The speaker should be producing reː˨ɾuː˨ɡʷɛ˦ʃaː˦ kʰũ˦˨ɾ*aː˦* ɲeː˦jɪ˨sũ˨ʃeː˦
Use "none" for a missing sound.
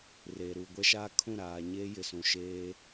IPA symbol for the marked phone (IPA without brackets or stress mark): aː˨